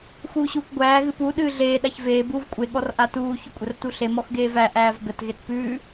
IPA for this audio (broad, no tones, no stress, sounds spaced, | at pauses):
x uː ɕ uː kʷ ɡʷ æː ɣ ɨ p u ɗ ɨː ɮ eː ɗ a ç v eː b uː v kʷʼ e ɠ ɔ r ʔ a t uː ç ʊ kʷʼ ə r t u ɬ e m ɔ x ɡ eː v æ ʔ æː v ɡ ə t ɣ e t p ʉː